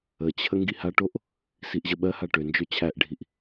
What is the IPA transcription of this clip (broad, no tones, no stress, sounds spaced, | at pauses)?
ə t͡ɕʰ ə ŋ ɡ i h a ʈ o ʔ | s i ʔ ʑ ə ɓ ɜ h a ʈ ø n d͡ʒ ø t͡ɕʰ æ ʔ ɖʱ i ʔ